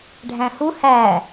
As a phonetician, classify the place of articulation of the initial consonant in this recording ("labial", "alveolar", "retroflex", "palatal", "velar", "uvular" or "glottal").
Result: retroflex